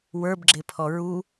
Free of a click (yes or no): no